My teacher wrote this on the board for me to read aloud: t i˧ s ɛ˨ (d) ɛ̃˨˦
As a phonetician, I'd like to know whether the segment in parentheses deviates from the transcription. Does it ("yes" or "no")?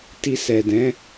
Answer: no